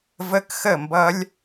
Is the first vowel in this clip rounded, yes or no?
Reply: no